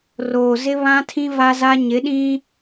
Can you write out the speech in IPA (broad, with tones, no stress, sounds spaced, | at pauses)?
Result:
r oː˨ z ɪ˦ β ã˦ tʰ ĩ˦ v a˦ z a˦ ɲ ɪ˨˦ ɗ ĩ˦